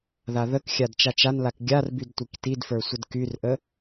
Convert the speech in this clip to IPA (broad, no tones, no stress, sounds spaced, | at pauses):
ð a ð ə k xʲ a d t͡ʃ a t͡ʃ a n l a k ɡʲ a r b y d tʷ i k t i d f ə˞ sʷ ə d k y r ʔ ə